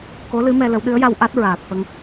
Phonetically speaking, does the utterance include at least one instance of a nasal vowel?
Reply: no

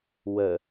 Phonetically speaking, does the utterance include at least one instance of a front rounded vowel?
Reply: no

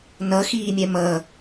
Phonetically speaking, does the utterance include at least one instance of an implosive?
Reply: no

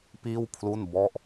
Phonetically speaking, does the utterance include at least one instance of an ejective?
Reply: no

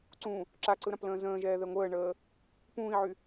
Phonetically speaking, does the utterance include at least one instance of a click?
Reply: yes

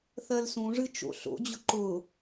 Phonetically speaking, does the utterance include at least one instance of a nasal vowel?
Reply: yes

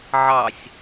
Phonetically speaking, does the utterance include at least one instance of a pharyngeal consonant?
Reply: yes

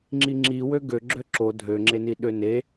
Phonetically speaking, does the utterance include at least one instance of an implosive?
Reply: yes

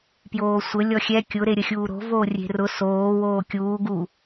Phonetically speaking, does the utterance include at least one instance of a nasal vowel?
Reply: no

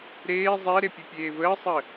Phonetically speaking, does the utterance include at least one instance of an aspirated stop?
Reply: no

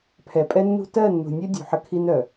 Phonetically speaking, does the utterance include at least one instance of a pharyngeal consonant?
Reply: yes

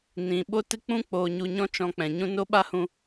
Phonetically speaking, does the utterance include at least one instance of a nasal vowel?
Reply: yes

